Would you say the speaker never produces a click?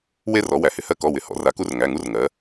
yes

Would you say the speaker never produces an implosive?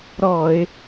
yes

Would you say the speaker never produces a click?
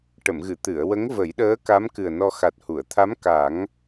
yes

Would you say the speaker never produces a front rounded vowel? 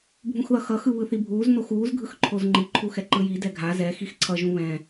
yes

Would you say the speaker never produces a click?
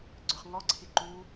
no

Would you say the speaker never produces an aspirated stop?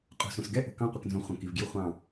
yes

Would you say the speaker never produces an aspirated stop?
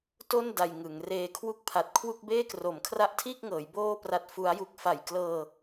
no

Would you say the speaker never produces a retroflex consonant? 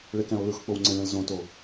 no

